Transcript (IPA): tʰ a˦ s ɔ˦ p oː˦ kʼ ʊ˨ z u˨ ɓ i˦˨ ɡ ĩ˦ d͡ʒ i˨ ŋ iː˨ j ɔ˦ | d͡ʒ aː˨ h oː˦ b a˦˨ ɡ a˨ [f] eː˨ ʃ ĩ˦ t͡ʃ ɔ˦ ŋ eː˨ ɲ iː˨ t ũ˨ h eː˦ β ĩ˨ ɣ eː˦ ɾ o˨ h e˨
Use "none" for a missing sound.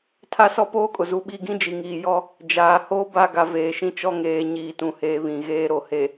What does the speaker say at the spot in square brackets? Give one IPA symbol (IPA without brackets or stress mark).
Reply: v